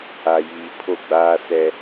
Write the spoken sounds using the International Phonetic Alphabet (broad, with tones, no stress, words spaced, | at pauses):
a˨jiː˨ pʰo˦˨ɡ͡baː˦sɛ˦